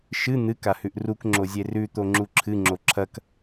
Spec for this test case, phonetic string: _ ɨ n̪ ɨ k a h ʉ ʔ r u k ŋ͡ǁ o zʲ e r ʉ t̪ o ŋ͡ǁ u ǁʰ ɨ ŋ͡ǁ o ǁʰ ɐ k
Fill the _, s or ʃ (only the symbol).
ʃ